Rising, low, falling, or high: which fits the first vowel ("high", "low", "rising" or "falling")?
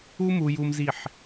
high